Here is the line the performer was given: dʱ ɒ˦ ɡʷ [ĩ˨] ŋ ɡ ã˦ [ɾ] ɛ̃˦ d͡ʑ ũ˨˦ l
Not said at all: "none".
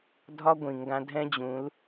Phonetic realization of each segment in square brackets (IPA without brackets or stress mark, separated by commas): ĩ˨, dʱ